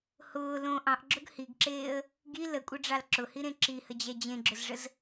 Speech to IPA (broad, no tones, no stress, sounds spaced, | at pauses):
h ʊː l õ ʔ ɑ̃ ʔ ɡ͡ǁ ʊ ɡ h i ɡ ǁ eː ə̯ | ɡ i l ə kʷʼ ɘ ɖ͡ʐ ɑ l ǁ ʊ h i ɾ ẽ ǁ i h ə d͡ʑ ɛ d͡ʑ ẽ ɡ͡ǁ ʊ z ʐ ə z